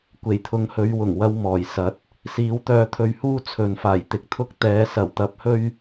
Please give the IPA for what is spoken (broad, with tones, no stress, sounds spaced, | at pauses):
kʷ e˨˩ j t̪ʰ ʊ˨˧ ŋ h ɵ˨˧ ɥ w ʊ˨˩ ŋ w ɐ˧ w m ɔː˨˩ j s ɐ˨˥ t̚ | s iː˨˥ w t̪ œː˧ t̪ʰ ɵ˧ ɥ h uː˥ t͡sʰ ɵ˨ n f aː˨˩ j t̪ ɪ˨ k̚ t̪ʰ ʊ˥ k̚ t̪ ɛː˨˧ s ɐ˨˩ w t̪ ɐ˧ p̚ h ɵ˥ ɥ